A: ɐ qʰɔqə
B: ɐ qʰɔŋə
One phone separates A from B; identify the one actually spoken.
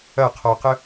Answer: A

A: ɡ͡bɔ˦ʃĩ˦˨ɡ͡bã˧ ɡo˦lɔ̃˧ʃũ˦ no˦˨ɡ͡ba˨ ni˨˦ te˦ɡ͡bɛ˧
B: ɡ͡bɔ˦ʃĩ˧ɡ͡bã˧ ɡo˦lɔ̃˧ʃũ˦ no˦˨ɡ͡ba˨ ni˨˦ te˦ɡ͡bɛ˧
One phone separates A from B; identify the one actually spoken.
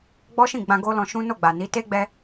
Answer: A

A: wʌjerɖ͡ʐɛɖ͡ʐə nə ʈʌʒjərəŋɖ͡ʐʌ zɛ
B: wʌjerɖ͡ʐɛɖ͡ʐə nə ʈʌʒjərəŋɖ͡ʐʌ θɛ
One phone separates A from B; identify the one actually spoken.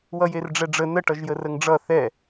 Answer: B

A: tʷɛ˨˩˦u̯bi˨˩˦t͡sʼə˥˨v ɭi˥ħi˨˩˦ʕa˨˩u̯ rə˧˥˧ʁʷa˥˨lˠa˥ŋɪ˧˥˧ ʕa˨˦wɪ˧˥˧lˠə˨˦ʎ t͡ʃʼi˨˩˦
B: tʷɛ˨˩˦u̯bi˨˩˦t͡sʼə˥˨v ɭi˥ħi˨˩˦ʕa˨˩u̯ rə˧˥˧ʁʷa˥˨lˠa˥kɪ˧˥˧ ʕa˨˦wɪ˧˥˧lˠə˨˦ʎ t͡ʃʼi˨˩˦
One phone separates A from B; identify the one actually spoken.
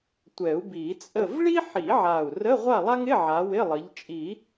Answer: A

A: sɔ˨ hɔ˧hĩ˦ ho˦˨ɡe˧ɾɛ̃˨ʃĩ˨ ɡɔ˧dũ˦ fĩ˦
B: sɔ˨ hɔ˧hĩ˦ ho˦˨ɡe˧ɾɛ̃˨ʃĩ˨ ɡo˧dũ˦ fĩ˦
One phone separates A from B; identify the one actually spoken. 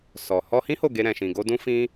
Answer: B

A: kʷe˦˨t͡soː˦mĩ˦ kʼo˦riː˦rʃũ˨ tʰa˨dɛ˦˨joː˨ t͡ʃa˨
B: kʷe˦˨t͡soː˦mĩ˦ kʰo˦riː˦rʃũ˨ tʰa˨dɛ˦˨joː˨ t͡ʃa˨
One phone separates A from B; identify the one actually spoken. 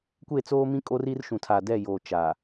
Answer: A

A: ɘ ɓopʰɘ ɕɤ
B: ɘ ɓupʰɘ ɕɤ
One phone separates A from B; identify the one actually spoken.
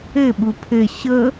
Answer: B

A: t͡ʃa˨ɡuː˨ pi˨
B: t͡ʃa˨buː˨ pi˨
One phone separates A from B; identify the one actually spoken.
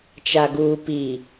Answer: A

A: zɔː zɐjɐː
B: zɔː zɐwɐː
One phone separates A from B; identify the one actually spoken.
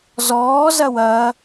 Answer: B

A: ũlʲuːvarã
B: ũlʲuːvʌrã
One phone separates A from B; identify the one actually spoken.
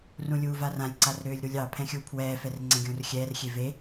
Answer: A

